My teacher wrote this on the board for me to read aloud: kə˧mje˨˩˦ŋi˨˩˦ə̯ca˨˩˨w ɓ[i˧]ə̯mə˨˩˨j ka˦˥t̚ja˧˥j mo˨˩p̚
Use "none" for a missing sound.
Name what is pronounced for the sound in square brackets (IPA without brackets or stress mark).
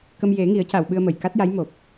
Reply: ɨ˧